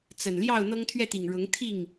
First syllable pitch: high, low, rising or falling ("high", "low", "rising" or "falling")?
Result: low